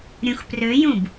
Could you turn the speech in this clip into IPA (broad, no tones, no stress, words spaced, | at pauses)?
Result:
ɾʲũxprøjũb